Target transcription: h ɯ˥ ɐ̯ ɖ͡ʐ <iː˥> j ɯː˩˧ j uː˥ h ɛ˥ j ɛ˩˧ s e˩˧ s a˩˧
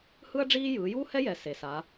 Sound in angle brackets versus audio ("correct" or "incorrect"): correct